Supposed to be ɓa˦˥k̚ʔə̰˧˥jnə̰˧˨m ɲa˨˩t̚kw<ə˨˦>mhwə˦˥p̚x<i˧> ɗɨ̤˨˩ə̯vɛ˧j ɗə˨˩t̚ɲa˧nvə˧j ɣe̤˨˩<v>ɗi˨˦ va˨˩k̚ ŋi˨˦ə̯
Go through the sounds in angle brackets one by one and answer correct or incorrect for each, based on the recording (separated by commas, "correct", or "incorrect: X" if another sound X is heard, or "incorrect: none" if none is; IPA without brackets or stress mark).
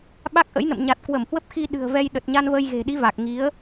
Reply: incorrect: ə˧˩, correct, incorrect: none